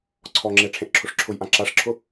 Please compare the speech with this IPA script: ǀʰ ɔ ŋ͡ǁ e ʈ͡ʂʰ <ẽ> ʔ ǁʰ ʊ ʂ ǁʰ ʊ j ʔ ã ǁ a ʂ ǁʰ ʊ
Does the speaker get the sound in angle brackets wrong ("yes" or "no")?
no